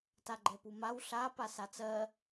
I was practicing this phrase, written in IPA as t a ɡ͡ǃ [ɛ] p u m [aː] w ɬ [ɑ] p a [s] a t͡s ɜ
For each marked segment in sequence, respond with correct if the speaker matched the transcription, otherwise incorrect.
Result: correct, incorrect, incorrect, correct

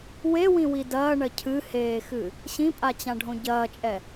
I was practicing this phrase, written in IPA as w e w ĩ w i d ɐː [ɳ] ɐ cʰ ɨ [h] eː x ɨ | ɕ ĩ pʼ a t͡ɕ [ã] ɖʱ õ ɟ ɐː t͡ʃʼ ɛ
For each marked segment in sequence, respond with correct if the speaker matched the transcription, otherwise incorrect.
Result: correct, correct, correct

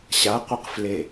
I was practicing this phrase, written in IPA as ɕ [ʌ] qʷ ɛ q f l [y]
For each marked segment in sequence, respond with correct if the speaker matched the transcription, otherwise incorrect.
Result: incorrect, incorrect

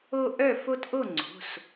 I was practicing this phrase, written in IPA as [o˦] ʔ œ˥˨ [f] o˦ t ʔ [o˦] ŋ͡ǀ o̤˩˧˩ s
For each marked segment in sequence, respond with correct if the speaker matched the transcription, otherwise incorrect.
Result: correct, correct, incorrect

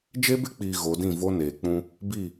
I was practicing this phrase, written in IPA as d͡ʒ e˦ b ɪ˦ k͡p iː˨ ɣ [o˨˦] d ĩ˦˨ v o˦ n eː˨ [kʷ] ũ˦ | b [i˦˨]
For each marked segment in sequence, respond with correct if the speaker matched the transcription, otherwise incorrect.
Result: correct, incorrect, correct

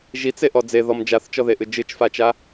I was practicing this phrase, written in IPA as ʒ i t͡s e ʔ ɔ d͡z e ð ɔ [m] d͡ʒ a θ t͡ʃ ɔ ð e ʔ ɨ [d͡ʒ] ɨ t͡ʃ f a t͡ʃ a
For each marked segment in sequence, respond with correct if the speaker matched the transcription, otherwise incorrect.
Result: correct, correct

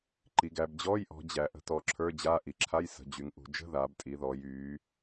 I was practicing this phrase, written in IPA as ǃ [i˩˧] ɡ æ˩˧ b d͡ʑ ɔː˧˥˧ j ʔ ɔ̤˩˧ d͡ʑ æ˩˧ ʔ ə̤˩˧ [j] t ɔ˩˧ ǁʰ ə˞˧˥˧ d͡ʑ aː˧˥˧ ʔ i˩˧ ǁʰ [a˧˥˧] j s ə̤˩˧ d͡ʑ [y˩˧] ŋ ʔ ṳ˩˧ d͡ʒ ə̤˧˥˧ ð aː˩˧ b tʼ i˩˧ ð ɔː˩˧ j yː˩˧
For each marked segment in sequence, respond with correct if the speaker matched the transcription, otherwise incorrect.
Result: correct, incorrect, correct, correct

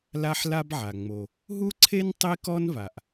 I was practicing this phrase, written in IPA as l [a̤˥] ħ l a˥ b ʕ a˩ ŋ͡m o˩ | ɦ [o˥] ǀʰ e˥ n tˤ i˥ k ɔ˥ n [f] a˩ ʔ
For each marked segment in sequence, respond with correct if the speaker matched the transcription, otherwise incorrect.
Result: incorrect, incorrect, incorrect

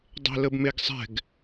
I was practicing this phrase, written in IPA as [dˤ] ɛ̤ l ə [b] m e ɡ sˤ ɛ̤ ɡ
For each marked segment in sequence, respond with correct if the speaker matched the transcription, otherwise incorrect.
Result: correct, correct

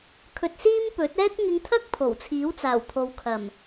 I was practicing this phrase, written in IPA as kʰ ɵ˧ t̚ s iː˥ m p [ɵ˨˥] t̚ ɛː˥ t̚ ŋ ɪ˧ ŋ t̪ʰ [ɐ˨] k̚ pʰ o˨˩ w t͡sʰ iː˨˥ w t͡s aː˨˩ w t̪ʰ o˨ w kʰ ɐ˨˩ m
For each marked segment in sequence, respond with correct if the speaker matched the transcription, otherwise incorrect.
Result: correct, incorrect

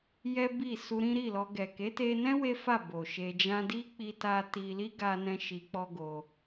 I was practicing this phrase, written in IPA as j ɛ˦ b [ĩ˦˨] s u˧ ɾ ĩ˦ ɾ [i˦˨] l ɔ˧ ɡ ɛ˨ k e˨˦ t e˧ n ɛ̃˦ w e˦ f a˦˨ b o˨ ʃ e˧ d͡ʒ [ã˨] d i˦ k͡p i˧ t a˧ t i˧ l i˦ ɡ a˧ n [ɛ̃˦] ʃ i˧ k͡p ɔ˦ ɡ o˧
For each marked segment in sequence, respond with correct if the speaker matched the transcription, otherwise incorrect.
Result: incorrect, correct, incorrect, incorrect

